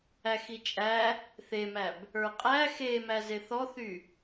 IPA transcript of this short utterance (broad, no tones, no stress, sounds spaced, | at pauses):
æ x i t͡ʃʼ æ | θ e m æ b | ə˞ qʼ æ x e m æ z e θ ɔ θ y